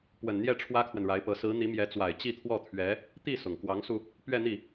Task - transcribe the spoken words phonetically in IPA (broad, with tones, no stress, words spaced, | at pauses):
pwə˨˩nn̪jɛ˥˩ ʈ͡ʂʰwä˥kʰwə˨nɻa˧˥ɪ̯pɤ˧˥ sɹ̩˧˥ n̪i˧˥mjɛ˧˥t͡swa˨˩ɪ̯ t͡ɕi˥˧t̪ʰwɔ˥˩t̪ʰɥɛ˧˥ | t̪i˥˩ sʊ˨˩ŋ kwɑ˧˥ŋsu˧ | pɥɛ˥˧n̪i˥˩